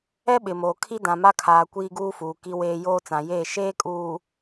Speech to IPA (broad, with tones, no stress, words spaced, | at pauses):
ɛ˦ɓɪ˨moː˨ kʰi˦dã˨ma˦ kʰaː˨ kʷiː˦ɡuː˦fuː˨ ki˦weː˦ joː˦t͡sã˨jeː˦˨ ʃeː˦kʼuː˨